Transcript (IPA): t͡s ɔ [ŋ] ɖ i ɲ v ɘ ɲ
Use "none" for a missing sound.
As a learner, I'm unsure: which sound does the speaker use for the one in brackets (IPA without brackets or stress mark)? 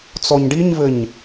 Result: ɲ